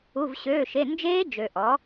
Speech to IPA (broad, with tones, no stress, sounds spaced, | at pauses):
u˧˥˧ v ɕ øː˧˥˧ ʃ e˧˥˧ n d͡ʒ eː˦˥ d͡ʒ ø˨ ʔ ɔ˨˥